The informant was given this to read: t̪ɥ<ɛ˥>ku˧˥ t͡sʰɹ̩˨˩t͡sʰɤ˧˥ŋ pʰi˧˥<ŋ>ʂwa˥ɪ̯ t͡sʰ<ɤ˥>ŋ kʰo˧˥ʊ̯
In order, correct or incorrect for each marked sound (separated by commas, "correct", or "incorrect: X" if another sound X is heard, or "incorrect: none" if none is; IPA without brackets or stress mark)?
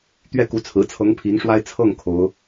incorrect: ɛ˥˩, correct, incorrect: ɤ˥˩